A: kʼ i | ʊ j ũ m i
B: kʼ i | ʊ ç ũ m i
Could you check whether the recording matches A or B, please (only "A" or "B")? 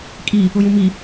A